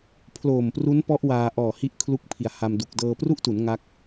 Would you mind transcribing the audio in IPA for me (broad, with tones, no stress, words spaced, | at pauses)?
pʰloː˨˩mpru˦˥npɔ˦˥ʔ waː˧ ʔɔː˨˩hi˦˥ʔ kʰlu˥˩k̚pʰi˨˩a̯ha˧mdu˨˩k̚ dɤː˧pru˥˩ʔtu˩˦n ŋa˦˥k̚